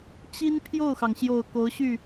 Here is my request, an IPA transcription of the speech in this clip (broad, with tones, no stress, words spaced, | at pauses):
t͡ɕi˥n pʰjo˥˩ʊ̯xɑ˩ŋɕjo˨˩ʊ̯ ko˧˥ʊ̯ɕy˥˩